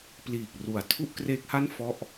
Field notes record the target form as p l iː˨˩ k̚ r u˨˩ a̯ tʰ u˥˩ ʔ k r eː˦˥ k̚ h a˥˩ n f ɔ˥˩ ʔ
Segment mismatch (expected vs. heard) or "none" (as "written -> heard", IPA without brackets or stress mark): none